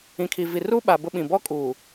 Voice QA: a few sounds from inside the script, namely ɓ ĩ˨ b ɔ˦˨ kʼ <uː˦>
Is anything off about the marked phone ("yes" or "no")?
yes